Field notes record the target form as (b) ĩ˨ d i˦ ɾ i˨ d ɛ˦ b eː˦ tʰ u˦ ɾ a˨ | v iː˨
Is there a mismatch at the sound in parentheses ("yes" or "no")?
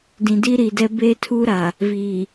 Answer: yes